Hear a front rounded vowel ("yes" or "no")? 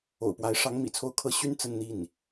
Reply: yes